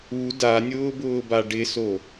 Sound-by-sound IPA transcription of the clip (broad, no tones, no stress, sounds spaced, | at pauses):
u d a nʲ ʊː b ʊː b a ɖ ɪ s o